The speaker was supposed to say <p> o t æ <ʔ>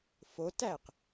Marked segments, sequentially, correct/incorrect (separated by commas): incorrect, incorrect